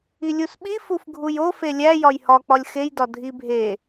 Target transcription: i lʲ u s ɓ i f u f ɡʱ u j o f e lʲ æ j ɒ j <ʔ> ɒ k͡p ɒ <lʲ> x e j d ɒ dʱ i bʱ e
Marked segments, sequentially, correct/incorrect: incorrect, correct

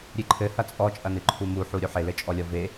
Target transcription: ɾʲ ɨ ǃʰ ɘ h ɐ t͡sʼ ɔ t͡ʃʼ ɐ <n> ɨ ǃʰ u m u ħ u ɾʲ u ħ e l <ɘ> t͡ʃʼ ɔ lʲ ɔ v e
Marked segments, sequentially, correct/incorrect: correct, correct

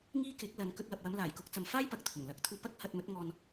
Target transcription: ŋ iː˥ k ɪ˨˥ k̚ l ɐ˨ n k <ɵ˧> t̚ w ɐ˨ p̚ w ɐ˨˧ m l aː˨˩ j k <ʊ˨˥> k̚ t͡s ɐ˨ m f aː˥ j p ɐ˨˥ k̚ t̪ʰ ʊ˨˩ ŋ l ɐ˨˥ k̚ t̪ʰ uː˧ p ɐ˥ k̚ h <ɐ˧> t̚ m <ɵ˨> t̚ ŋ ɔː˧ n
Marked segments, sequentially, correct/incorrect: correct, correct, correct, incorrect

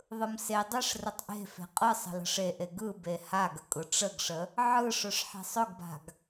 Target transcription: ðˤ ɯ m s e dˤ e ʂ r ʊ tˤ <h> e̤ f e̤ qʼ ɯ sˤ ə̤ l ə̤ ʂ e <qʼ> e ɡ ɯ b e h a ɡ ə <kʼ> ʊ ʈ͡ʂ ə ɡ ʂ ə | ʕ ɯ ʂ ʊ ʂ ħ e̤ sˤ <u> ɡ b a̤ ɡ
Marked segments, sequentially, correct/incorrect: incorrect, incorrect, correct, incorrect

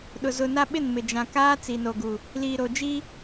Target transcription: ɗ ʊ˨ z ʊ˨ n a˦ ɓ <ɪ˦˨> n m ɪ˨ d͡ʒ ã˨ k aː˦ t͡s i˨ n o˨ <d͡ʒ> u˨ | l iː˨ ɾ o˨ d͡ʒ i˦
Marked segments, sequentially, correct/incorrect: correct, incorrect

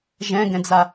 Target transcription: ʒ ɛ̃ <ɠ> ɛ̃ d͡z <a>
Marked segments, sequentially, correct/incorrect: incorrect, correct

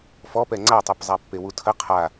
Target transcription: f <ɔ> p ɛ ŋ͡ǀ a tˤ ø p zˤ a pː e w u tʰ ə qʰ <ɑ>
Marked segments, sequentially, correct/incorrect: correct, incorrect

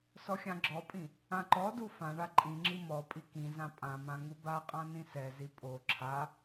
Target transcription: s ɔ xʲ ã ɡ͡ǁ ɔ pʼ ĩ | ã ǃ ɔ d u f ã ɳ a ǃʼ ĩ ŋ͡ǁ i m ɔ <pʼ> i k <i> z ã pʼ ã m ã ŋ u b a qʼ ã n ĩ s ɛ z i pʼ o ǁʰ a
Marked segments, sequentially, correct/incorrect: correct, incorrect

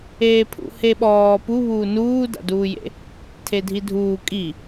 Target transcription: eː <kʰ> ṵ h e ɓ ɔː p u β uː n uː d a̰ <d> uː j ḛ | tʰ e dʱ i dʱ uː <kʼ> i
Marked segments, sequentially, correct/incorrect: incorrect, correct, correct

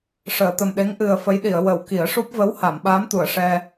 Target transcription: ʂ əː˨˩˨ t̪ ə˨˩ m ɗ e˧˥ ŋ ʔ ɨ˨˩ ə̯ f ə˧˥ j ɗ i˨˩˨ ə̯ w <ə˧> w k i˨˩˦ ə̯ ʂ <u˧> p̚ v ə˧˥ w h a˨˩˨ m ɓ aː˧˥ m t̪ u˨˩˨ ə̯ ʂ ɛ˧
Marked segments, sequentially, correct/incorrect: incorrect, incorrect

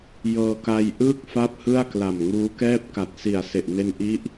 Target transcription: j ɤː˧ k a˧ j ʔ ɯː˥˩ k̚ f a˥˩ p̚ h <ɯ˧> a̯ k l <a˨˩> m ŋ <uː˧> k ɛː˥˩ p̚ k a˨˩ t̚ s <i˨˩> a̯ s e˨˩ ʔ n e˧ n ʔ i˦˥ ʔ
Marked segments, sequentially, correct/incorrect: incorrect, correct, incorrect, correct

